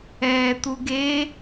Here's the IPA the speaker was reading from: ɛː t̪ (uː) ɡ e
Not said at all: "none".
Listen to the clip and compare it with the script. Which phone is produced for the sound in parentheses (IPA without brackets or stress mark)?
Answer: u